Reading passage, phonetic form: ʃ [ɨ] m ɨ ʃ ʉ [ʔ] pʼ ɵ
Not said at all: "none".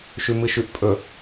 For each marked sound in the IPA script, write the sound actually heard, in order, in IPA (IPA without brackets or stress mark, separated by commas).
ʉ, ʔ